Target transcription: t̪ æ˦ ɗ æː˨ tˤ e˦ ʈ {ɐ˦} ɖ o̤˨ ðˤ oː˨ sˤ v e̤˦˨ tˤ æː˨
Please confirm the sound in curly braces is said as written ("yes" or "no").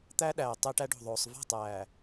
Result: no